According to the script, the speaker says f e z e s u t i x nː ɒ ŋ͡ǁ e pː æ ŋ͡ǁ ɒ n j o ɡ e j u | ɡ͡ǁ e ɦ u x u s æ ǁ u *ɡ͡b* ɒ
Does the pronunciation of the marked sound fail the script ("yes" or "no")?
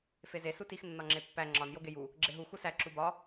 yes